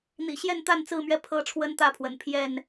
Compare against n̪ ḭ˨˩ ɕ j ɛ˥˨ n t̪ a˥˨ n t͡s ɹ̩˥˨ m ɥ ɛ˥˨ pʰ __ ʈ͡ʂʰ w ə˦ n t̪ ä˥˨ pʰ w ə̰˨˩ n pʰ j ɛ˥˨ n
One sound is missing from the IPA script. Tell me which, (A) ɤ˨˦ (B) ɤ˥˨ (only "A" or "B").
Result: B